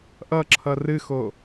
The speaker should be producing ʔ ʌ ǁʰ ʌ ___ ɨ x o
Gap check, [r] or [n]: r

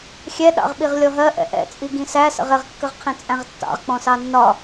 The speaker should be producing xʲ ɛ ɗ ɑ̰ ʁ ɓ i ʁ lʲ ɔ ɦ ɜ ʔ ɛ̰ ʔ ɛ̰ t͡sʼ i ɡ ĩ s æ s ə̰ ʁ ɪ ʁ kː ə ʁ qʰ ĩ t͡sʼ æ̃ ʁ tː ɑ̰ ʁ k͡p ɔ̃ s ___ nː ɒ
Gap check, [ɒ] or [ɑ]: ɑ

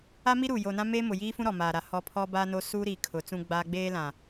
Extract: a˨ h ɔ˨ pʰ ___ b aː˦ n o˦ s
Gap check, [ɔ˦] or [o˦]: ɔ˦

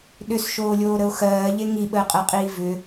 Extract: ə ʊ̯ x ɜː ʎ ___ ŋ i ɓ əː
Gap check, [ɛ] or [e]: e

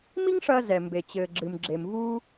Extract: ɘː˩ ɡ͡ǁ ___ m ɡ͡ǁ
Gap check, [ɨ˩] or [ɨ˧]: ɨ˩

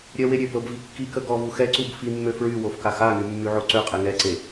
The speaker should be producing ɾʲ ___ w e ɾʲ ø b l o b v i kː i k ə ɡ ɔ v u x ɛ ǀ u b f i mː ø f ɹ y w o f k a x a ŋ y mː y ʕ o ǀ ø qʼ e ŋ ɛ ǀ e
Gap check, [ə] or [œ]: œ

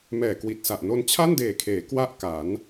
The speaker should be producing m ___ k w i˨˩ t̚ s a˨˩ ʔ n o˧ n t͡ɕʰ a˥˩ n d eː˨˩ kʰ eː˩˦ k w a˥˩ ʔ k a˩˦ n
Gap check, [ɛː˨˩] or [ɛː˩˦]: ɛː˨˩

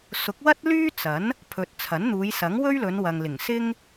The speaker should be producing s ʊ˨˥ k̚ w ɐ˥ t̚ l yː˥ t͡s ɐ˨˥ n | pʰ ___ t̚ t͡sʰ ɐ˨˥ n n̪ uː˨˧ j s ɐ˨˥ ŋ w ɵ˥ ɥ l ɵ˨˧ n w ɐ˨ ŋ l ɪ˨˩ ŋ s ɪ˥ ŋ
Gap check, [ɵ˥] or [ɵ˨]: ɵ˨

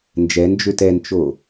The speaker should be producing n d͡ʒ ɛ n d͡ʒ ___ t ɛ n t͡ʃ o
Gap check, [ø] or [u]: ø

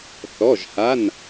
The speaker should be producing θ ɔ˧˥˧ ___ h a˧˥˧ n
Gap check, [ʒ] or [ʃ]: ʒ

